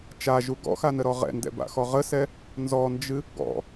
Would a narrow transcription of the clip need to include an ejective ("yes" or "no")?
no